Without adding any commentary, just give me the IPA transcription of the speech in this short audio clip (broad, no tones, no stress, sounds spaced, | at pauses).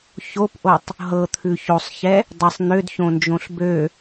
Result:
ç o p ʔ o tˤ | ɦ ɤ t̪ʰ ʉ ç o sˤ ç ɛ | dˤ ɘ sˤ n̪ ø d ç õ n d͡ʒ õ ɬ b ø